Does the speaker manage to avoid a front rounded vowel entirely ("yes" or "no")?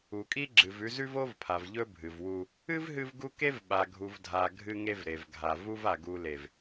yes